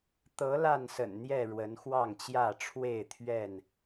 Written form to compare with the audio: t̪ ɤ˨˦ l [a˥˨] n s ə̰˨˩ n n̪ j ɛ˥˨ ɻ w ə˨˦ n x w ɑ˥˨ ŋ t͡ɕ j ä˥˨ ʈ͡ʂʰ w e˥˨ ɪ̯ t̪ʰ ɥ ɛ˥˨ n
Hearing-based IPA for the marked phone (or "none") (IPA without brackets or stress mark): a˥˨